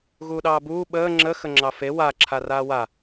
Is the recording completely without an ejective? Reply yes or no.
yes